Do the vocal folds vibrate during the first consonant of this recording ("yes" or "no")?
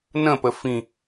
yes